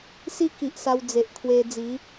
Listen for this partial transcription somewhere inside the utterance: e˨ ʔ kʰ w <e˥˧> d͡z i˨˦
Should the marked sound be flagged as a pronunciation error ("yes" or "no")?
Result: yes